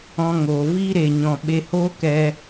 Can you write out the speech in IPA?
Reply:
ɔ̃˧ŋoː˨ viː˦ɾe˨ɲɔ̃˨ ɓe˧hoː˦kɛ˧

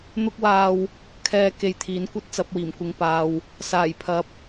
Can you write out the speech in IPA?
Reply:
n̪ʊ˧k̚waː˨w | kʰɛː˨ ke˨jt̪ʰiː˨˥nkʷɐ˥t̚ t͡sɐ˨˥p̚wiː˨˩mkʷɪ˧ŋ paː˨w | saː˨˩j pʰɐ˨˥p̚

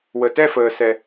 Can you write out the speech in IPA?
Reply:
wə˩tɛ˦˨fəː˩ sɛ˩

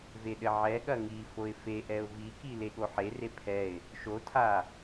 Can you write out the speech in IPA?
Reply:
veɗɘʕɛ ɠɐŋi foɪ̯feʔɛʊ̯ viki leɠoħer epʰɛɪ̯ | ʃotʰa

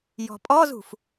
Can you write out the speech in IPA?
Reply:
jɔ̤pʼɔzṳf

